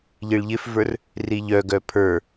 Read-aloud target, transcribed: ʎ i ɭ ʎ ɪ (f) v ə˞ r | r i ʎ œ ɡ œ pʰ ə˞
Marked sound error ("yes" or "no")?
no